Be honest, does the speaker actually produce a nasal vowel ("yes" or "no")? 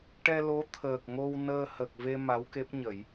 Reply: no